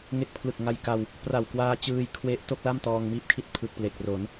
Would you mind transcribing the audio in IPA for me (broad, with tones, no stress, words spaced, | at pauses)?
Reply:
ŋe˦˥k̚pʰlɯ˨˩k̚ ŋa˧jka˧w | pra˨˩wkwaː˧ t͡ɕɯː˧jkʰwe˦˥ʔto˥˩k̚la˥˩m tɔː˧ŋmiː˥˩p̚kʰi˥˩t̚ pʰɯ˨˩k̚ple˨˩k̚ro˩˦n